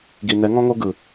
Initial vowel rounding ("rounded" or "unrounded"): unrounded